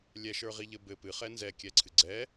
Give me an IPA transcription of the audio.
lʲ ɛ ʃ ə˞ ʁ i ʎ ɘ b ɘ p ɨ χ ɛ n z ɛ kʲ ɛ ǀʰ ɨ ɡ͡ǀ ɛ

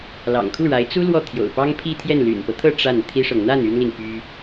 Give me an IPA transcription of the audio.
l ɑ̰˨˩ ŋ kʰ u˥˩ ɻ a˧˥ ɪ̯ t͡s u˥ l w ɔ˥˩ t̪ʰ j o̰˨˩ ʊ̯ p ɑ˥ ŋ pʰ i˥˧ t̪ʰ j ɛ˥˩ n l y̰˨˩ n p ɤ˦ t̪ʰ ɤ˥˧ ʈ͡ʂ a˥˩ n t̪ʰ i˥ ʂ ɤ˨ ŋ n̪ a˥˩ n y˥ n l i˨ ŋ p y˥

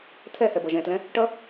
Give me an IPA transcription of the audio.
t̪ʰ ɛ h ɛ b ʌ ʒ ɛ̃ t l ɛ̃ | ʈ ʌ

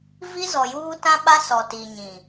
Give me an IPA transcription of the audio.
v i˦ z ɔ˨ j uː˦ t ã˦ ɓ a˦ s ɔ˨ t i˨ ɲ ĩ˨

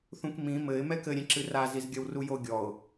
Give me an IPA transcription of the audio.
θ ũ k m ĩ m ɘ ɪ̯ m ɛ k ɘ ɾʲ ẽ ǁ ɨ r a z i z ɡʲ ɐ w r u j o ɡʲ ɔ ʊ̯

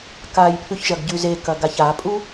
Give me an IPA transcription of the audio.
k a j pʰ ʉ ç ʒ ɐ ɡ ɟ ʉ z e k ɐ ɡ a ç a pʼ u

